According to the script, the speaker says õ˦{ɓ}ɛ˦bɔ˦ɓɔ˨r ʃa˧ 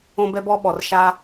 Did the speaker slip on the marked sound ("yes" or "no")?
yes